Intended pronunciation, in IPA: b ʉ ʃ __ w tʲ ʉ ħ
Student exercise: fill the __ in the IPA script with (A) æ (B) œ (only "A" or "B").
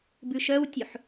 B